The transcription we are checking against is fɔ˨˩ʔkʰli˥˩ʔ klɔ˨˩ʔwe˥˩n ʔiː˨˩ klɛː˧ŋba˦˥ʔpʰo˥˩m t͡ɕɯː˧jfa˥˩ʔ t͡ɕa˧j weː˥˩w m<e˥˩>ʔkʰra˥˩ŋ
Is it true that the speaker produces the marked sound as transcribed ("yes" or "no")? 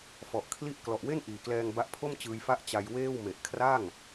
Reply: no